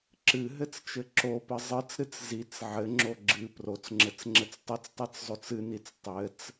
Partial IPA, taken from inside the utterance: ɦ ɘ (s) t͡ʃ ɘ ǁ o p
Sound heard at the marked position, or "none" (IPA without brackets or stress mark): t͡s